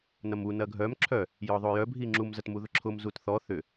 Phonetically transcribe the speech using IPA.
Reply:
n ɐ m u n ɐ ɡʱ œ m ǁʰ œ | j ɔ ðˤ o j œ bʱ i ŋ͡ǁ u m z ɐ t m u ð ʊ ǁʰ ʊ m z u t θ ɔ θ ʏ

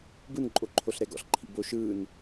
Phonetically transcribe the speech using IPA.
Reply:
b ɯ n ǃʼ o ǃʰ o ɬ ɾ ɛ ɡ ɔ̰ ɬ ǃʰ ḭ b o ʃ ɯː n

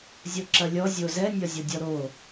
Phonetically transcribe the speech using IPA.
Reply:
zʲ o ǁ ɐ lʲ ɔ zʲ o z ɛ nʲ ɒ zʲ ɔ dʲ ɔ ɾ o

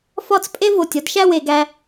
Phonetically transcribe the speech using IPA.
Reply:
f ɒ˥˧ t͡s pʼ e˥ v o˧˩ tʲ ɒ˥ d ʃ æ˥˧ w e˩˧ ɡ æ˧

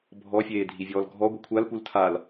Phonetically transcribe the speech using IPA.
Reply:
bʱ ɔ fʲ eː dʱ i vʲ ɔː l ɡʱ ɔ ɡʷ i kʷʰ a l p u l tʰ a l

